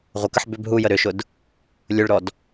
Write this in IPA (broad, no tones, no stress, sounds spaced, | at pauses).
ʁʷ ə k ə ħ b ʏ b ɦ u j ə ɾ ʏ ʃ ʊ d | lʲ ʊ ɭ ɾ ɔ d